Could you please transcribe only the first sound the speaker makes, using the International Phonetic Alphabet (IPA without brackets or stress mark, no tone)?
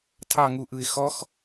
tʰ